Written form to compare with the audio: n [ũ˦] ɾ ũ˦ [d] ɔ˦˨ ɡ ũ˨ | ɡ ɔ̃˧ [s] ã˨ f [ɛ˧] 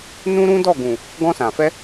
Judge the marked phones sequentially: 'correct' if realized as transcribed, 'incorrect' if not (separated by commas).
correct, correct, correct, correct